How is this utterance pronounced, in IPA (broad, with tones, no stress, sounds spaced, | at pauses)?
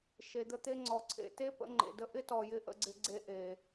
ʃ e˨ d̪ ə˧ t̪ e˧ ŋ͡ǀ ɔ˨ ǀʰ ḛ˨ t e˦ p ə̰˨˦ ŋ͡ǃ ḛ˨ d ə˦ ʔ ɪ˦ t ɔ˨ j ɪ˧ ʔ ə̰˧ ɡ͡ǀ ɪ˧ ɡ͡ǀ e˧ ʔ e˨